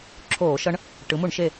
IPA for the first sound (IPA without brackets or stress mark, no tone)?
ǁʰ